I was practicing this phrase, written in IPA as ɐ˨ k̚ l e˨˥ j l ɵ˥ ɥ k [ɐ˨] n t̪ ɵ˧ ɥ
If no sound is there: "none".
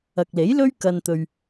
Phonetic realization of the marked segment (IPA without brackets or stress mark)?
ɐ˧